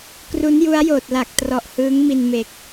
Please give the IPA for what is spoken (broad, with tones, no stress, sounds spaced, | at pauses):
k r u˦˥ n j u˦˥ a̯ j oː˨˩ t̚ l a˨˩ k̚ t r ɔ˨˩ ʔ h ɯː˦˥ ŋ m i˧ n m e˨˩ k̚